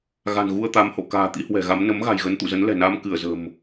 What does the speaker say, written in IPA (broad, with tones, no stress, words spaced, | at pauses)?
ɣa̤˨˩nɣu˧ə̯t̪a˨˦m ho̰˧˨ka̤ː˨˩ t̪ḭ˧˥hwɛ̤˨˩ɣa˨˦m nə˨˦mɣa̤˨˩jɣə˨˦n t̪ṵ˧˨zə˨˦nlɛ̤˨˩naː˧m kɨ˧˩ə̯zə̤˨˩m